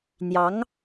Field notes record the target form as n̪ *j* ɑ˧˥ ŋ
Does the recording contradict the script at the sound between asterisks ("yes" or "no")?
no